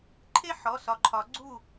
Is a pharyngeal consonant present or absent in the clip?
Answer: present